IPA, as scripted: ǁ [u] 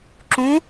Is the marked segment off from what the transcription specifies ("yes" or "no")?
yes